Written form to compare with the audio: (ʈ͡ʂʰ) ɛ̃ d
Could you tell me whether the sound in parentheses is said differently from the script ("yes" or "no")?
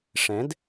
yes